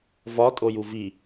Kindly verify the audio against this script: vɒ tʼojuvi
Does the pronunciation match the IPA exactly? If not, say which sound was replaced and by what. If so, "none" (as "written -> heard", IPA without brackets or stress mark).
none